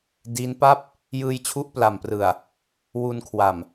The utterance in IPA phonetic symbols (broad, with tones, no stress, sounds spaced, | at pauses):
d iː˦˥ n p a˥˩ p̚ | j ɯː˧ j t͡ɕʰ u˦˥ ʔ p l a˨˩ m p r ɯ˨˩ a̯ | w u˧ n kʰ w a˨˩ m